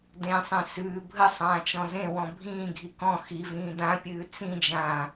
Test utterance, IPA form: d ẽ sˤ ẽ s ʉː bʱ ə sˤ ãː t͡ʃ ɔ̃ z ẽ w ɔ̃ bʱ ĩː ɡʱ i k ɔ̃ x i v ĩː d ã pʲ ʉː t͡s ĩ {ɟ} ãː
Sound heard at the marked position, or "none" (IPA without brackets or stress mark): d͡ʒ